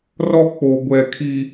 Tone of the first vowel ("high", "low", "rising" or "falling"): high